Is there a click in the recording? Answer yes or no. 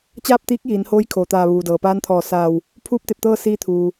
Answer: no